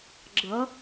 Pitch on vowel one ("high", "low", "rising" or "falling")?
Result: rising